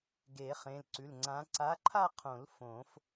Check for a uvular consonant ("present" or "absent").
present